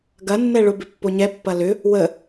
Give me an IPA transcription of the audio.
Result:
ɡ ɐ nː ɛ ɭ ʊ b ɪ pː o ɲ ɛ pː ɐ l ʏ | w ə

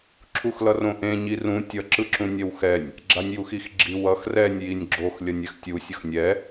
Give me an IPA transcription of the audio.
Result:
ǁʰ u x l ʌ r õ ʔ ẽ ɲ i r ũ tʲ ʌ ǁ ɯ ǁ ũ nʲ ɛ w x ɛ nʲ | ɡ͡ǁ a nʲ j u x i x ɡ͡ǁ i w ʌ x r ɛ nʲ j i nʲ ɡ͡ǁ o x lʲ ʌ nʲ ɛ x tʲ u sʲ ʌ x nʲ ɛ

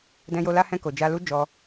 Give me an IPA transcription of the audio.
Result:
d ɛ̃˧ j o˧ l a˧ h ɛ̃˧ k o˨ d͡ʒ a˧ l u˦ d͡ʒ ɔ˧

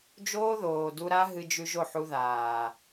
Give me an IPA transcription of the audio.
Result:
d͡ʒ oː˦ ð oː˨ d u˧ ɾ a˦ ɦ ɨ˧ d͡ʒ ʉ˧ ʒ o˦˨ ħ u˧ ð aː˨

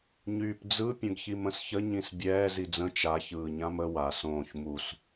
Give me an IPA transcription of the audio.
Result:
ɲ yː p d͡z ɯ pʲ ə̃ ɡ ç i m ə̃ s ç ə ɲ ĩ s bʲ ɛː z i d͡z ə̃ t͡ʃ a ç ɯː ɲ ã m ə w a s õː ç m u s

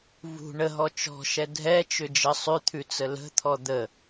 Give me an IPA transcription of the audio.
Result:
v ṳ ɳ ə ɦ ɔ t͡ʃ ɔ̤ ʃ ɛ dʱ ɛ t͡ʃ ʏ d͡ʒ ə sˤ ʉ t̪ʰ ʉ t͡s ə l ə̤ t̪ʰ ɔ d̪ ə

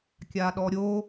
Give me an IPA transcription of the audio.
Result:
kʲ a ɗ ɔ ɾʲ o

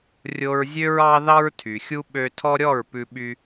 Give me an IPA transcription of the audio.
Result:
rʲ o˧ ɹ zʲ ø˦ ɹ ɑ˦ ð ɑ˦ ɹ tʰ y˨ xʲ u˦ ɓ ø˧ tʰ ɔ˦ ɾʲ ɔ˦˨ ɹ p ʉ˧ ɓ y˧

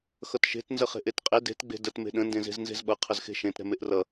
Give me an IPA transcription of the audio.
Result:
x ʌ t ʃ e̤ t n z ə χ e̤ ʔ e t qʼ e d e̤ t ɡ͡b e̤ d ə t m e̤ ɗ ə̃ n d ẽ z e̤ z n z e̤ z ɓ ʌ qʰ ə z x e̤ ʃ ẽ t ɾ ɛ̤ m e ʔ r ʌ

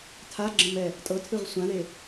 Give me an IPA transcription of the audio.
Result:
tʰ a ɡ͡ǁ ə̃ m ɛ | tʼ ɤ tʰ ɯ ʁ sʷ ã ð e

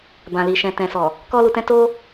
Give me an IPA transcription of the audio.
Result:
b ã˨ l i˨ ʃ ɛ̃˨ t ɛ̃˨ s ɔ˨ | k ɔ˦ l u˧ t ɛ̃˦ t o˦

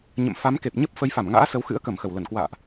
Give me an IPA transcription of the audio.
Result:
ɲ ə̰˧˨ m f a˨˦ m k e˨˩ p̚ ɲ ə˦˥ p̚ f ə˨˦ j f a˧˩ m ŋ a̰ː˧˥ s ə˨˦ w x ɨ̰˧˥ ə̯ k ə˧˩ m x ə˧˩ w l ə˧˩ n k w a̰ː˧˨ ʔ

